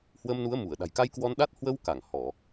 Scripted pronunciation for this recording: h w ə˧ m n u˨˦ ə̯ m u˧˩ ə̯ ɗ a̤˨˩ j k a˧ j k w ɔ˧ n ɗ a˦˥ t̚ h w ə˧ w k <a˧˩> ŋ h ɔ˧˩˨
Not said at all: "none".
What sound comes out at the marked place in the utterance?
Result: a˧˩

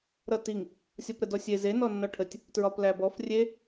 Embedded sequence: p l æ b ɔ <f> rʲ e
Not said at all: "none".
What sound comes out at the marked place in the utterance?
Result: f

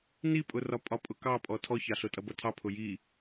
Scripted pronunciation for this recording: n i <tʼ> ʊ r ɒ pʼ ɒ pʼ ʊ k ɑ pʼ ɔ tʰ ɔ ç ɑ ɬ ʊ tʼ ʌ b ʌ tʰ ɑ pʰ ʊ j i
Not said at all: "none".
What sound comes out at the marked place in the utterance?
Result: pʼ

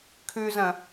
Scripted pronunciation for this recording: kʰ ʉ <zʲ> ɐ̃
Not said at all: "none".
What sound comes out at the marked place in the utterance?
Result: z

